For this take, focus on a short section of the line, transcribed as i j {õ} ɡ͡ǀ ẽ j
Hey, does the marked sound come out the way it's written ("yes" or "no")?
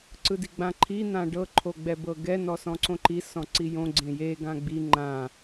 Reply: yes